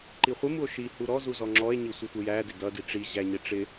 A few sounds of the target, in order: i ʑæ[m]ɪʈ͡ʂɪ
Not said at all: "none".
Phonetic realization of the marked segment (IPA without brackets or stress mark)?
ɲ